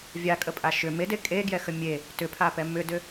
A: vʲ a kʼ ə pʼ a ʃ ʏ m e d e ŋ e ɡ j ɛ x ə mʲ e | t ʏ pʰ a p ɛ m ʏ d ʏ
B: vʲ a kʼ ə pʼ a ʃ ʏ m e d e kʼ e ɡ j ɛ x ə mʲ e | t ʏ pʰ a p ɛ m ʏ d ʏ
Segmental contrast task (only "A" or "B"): B